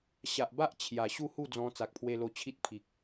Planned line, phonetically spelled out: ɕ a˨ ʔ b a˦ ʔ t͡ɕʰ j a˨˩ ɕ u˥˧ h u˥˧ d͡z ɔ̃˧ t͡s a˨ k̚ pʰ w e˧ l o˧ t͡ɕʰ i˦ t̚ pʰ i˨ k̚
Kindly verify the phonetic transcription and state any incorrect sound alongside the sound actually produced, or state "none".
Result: none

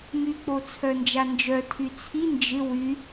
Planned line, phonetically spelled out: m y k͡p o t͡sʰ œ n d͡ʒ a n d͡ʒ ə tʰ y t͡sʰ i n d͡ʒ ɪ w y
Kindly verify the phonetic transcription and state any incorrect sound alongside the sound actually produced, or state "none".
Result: ə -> œ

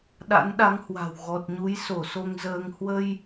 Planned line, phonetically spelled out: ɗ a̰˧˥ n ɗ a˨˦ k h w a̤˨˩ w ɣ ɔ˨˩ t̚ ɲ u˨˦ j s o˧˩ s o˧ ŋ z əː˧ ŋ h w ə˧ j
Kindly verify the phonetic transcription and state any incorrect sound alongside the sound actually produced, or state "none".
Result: k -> ŋ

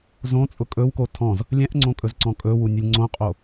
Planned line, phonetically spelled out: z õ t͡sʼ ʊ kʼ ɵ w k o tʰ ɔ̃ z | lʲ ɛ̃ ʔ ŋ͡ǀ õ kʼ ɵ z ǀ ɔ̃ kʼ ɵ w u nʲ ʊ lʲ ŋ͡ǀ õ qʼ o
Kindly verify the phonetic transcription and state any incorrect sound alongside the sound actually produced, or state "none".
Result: none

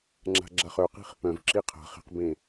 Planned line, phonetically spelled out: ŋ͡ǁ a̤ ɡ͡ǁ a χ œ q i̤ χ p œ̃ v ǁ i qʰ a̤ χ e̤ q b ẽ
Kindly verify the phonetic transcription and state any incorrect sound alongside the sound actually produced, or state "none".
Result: none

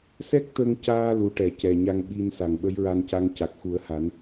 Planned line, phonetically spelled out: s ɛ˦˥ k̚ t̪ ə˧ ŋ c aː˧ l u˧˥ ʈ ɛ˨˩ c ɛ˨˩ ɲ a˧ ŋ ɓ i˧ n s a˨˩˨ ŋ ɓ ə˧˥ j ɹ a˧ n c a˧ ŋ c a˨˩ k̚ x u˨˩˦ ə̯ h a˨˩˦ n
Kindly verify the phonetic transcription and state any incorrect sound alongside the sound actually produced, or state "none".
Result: none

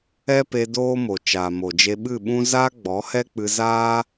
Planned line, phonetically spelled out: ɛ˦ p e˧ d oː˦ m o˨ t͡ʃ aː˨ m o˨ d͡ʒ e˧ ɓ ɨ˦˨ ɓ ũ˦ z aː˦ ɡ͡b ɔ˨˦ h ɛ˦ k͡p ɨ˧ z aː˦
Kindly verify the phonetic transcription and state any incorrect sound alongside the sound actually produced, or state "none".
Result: none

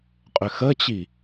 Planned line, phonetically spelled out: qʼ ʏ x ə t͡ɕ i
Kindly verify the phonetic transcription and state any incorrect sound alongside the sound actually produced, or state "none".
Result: none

